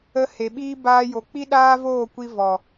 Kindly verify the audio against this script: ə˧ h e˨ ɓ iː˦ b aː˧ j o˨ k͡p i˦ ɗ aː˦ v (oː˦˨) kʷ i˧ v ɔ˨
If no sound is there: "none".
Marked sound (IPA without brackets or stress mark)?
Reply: oː˦˨